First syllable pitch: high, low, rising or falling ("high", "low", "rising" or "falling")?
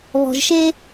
low